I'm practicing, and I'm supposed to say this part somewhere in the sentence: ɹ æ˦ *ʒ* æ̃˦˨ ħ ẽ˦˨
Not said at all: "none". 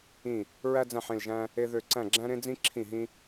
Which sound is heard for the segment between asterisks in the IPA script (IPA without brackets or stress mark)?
d͡z